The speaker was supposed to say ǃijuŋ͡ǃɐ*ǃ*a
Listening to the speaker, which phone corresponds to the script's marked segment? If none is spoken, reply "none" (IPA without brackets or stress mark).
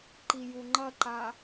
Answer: ǃ